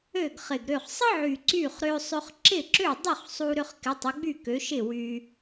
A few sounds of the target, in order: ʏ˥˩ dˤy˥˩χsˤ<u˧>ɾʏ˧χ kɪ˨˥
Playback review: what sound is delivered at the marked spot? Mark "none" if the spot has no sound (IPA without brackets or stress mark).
u˧